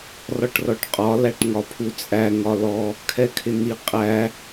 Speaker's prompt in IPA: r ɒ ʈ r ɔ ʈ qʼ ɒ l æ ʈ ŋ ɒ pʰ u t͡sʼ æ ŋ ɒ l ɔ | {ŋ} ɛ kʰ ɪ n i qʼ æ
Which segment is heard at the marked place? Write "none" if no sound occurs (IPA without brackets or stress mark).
kʰ